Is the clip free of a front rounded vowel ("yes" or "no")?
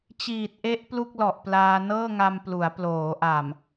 yes